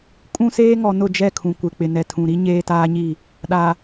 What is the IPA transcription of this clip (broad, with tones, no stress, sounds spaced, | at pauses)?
kʼ ũ˦ s eː˦ ŋ ɔ˨ n ʊ˦˨ d͡ʒ ɛ˦˨ kʰ ũ˨ kʷ ɪ˨ k͡p ɪ˨ n ɛ˨ tʰ ũ˨ ɾ i˦ ɲ eː˦ t aː˦ ɲ i˦˨ | ɗ a˨